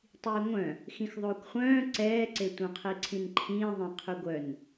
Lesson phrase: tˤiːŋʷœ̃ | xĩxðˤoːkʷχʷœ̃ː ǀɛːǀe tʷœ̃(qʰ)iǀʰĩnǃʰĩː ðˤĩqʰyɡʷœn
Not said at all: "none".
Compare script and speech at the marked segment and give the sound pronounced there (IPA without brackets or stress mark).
qʰ